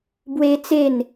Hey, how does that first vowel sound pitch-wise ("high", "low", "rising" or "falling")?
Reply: high